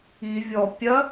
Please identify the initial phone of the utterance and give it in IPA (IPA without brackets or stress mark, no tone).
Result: i